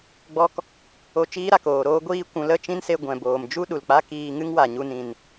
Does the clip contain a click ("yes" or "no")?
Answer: no